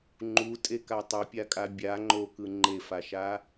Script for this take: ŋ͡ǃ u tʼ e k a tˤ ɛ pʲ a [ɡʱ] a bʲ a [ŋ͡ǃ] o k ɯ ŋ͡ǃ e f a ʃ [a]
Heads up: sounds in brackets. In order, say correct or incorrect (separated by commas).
incorrect, correct, correct